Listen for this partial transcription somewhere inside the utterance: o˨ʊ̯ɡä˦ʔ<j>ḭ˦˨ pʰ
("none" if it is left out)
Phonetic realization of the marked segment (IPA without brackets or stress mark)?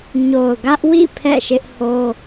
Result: w